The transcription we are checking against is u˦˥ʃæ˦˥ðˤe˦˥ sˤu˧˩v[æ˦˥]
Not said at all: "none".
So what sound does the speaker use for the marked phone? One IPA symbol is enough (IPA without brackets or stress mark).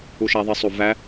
æ˦˥